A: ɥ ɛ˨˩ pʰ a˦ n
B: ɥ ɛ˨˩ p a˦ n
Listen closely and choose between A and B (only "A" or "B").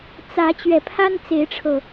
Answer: A